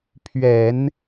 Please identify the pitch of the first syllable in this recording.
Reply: low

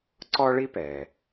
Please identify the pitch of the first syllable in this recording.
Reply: high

